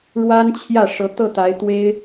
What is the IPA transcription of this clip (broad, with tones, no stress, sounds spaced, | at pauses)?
ɻ w a˥ n t͡ɕʰ j ä˥˩ ʂ ɤ˧˥ t̪ ɤ˥˩ t̪ a˧˥ ɪ̯ t̪ w e˥ ɪ̯